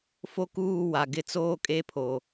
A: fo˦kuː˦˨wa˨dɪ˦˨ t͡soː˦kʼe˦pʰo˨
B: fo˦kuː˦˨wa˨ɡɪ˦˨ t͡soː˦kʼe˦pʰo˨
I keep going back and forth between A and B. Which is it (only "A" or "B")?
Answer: B